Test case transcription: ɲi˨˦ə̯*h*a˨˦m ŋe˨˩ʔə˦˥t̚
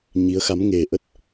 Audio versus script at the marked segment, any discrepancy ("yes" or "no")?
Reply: yes